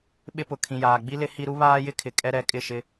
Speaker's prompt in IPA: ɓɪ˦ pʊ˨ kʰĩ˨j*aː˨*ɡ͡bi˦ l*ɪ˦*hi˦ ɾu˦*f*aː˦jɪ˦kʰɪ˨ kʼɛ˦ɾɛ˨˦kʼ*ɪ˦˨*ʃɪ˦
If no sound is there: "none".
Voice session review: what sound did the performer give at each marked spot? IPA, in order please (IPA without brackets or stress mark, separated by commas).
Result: aː˨, ɪ˦, β, ɪ˦˨